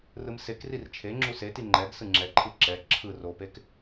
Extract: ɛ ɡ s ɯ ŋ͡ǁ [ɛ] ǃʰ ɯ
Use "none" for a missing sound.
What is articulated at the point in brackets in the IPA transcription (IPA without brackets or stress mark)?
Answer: ɛ